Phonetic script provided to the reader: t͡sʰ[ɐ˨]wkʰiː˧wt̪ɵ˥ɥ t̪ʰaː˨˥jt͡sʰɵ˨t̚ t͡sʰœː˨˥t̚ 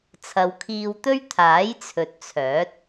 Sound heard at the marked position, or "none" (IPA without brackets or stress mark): ɐ˨˧